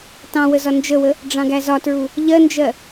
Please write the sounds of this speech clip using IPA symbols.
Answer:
tɑ̃wəzɒ nd͡ʒəwə | ɖ͡ʐɑ̃ɡæzɒtɹu | ʎɜnd͡ʒɜ

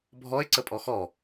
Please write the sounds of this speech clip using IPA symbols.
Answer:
bʱɔɪ̯ǀə pʼɔxɔ

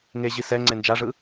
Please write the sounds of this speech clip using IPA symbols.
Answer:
ŋeʑi sɛ ŋ͡ǀend͡ʒaʐɯ

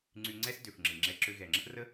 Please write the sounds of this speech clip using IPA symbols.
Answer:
ŋ͡ǀy˧ŋ͡ǀɛ˥s dø˩fŋ͡ǁɨ˩ŋ͡ǁɛ˧ ǁø˧ ɣɛ˩ŋ͡ǁə˥ʔrə˥

